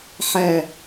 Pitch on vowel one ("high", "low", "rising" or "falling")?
low